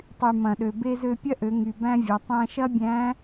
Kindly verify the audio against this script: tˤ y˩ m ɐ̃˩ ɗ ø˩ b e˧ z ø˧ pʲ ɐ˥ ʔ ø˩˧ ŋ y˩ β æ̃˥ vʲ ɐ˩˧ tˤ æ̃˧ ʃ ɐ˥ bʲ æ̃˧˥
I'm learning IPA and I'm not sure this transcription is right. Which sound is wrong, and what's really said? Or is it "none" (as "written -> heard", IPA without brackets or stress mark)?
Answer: β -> b